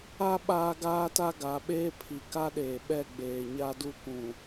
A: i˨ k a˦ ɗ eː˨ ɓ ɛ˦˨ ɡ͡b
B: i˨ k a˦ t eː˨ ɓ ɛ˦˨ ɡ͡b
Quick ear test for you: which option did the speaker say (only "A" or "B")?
A